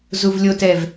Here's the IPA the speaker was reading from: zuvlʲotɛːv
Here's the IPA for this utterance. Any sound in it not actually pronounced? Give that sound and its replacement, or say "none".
none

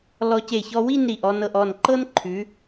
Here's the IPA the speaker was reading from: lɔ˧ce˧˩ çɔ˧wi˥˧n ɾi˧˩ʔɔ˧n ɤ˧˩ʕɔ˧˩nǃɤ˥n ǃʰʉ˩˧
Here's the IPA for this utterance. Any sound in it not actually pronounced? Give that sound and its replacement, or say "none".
ʕ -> ʔ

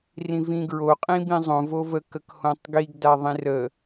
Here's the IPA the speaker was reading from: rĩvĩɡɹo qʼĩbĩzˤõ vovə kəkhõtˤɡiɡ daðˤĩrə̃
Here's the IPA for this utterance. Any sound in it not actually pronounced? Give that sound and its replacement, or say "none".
ə̃ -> ə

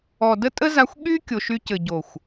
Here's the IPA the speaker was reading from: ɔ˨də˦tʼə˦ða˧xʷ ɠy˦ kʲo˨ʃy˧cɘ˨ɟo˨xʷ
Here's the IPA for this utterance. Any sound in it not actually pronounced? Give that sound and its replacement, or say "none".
ð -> z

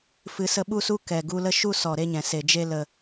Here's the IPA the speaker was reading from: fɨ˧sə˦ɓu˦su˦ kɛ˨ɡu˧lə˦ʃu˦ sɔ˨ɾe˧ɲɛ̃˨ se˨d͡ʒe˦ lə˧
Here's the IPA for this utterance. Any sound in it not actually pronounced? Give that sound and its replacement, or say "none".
none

